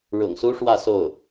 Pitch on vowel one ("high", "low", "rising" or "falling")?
low